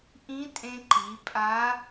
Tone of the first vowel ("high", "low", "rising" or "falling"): rising